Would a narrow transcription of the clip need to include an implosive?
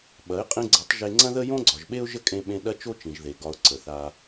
yes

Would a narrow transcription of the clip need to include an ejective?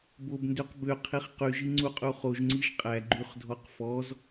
yes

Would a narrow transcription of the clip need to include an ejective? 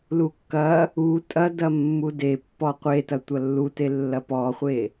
yes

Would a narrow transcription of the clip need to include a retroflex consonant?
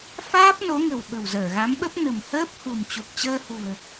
no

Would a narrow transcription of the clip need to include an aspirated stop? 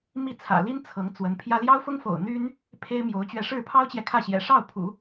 yes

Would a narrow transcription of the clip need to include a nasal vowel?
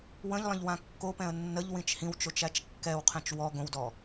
yes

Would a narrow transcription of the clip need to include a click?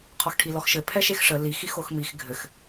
no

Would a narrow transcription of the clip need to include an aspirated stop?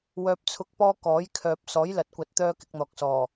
yes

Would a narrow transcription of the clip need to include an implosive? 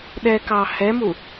yes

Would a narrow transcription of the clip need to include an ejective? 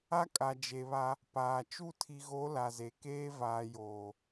yes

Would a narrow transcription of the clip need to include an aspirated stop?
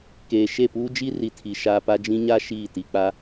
yes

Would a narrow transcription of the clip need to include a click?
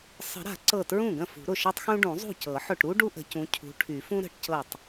yes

